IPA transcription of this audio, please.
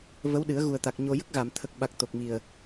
və˧˥wɗɨ˨˩˦ə̯ɣu˨˩ə̯t̪a˨˩k̚ ɲo˧ jə˦˥k̚ɣa˨˩˨m t̪ʰə˨˩k̚ɓa˨˩k̚ t̪o˨˩k̚mi˨˩ə̯

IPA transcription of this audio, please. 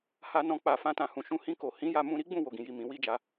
ha˧nɔ̃˧ k͡pa˨ fã˧tã˨hũ˨ʃũ˧ hĩ˧ko˨ hĩ˨˦ja˧mũ˧ ɾi˦ɡ͡bũ˦˨ wo˨ɡĩ˨ji˨ mĩ˨˦wi˦d͡ʒa˧

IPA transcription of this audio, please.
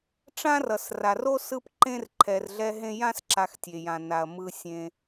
ʈ͡ʂã˦rʌ˩sra˩ro˦ sɯ˦pǃẽ˦r ǃʰɛ˨rɮɛ˦ɦẽ˦ jã˦sǁa˨xtʲe˩jã˩ na˩ɐ̯ mɯ˨sʲẽ˨

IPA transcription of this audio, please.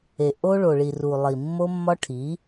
e˨ ʔo˦ɭo˨ɭi˨ ru˨ lˠi˨mːo˦mːɒ˦ʈʰi˨˦

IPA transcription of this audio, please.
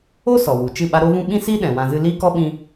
o˦ sɔ˨wu˨t͡ʃɨ˦˨ɓa˦ ɾo˦vũ˦ ɓĩ˦siː˦ ɗɛ̃˨wã˧ zɨ˧liː˦kɔ˦ɓĩ˧

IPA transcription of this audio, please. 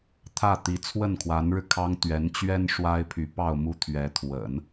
t̪ʰä˥˩t̪i˧˥ t͡sʰwə˥˩nkʰwa˧˥nɻɻ̩˧ kʰɑ˥ŋt̪ɥɛ˧˥n t͡ɕɥɛ˥n ʂwa˥ɪ̯pʰy˧˥ pɑ˥˧ʊ̯mu˥˩t̪ʰɥɛ˧˥ t̪ʰwə̰˨˩˦n

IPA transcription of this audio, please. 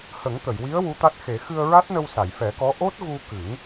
hə˨˩˦ŋt̪ə˨˩˨jwi˧˥ə̯ wu˧˥t̪a˦˥t̚xe˨˩˦ xɨ˧ə̯ɹa˦˥t̚nə˧w sa˨˩˨jfɛ˨˩˦kɔ˧˥ ʔo˦˥t̚ɣu˧kɨ˨˩˦ŋ

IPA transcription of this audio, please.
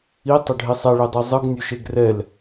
itˤɵɖʱi sˤɛɭedˤe zˤɯɡnʲɵʃeɡ rɛl

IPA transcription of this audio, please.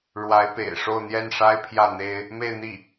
ɻwa˧˥ɪ̯pḛ˨˩ɪ̯ʂo˥˧ʊ̯ n̪jɛ˥˩nʂa˥ɪ̯pʰjä˥˩ n̪e˥ɪ̯ | me˥˧ɪ̯n̪i˥˩

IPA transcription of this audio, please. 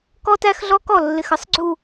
kɔ˦ tæ˦xɮɔ˦kɔ˨ lːɪ˨xə˦sˤɡ͡ǀu˨

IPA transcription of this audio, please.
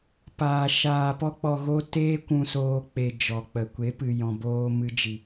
paː˧ ʃaː˧pɔ˦k͡pɔ˧ɣo˦ teː˦ kʷũ˧soː˧ k͡pe˧d͡ʒɔ˨k͡pə˨ kʷe˨˦pɨ˨ jɔ̃˨boː˧ mɨ˧ d͡ʒi˨

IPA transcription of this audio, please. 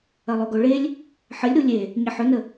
ɐlˠoɡoɭelʲ | ħəlʲɾu lʲe | ɲɐħɵnə

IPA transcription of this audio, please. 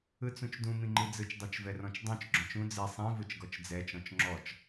ɯt͡sũt͡ʃdũ mĩŋ͡ǃid͡zɯt͡ʃ dˤot͡ʃvɛrɔ̃t͡ʃdˤõt͡ʃ ɡ͡ǁɔ̃t͡ʃũ d͡ze sˤĩ vɯt͡ʃɡɔt͡ʃd͡zɛ t͡ʃɔ̃t͡ʃŋ͡ǁɔt͡ʃ

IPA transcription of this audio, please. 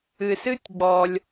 ɨ˩sɨ˥tʲ ɡ͡bɔ˩lʲ

